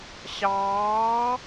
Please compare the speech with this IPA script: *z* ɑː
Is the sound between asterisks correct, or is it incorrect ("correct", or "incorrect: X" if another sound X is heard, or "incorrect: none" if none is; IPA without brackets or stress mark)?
incorrect: ɕ